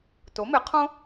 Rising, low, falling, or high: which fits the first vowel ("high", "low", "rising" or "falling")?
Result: rising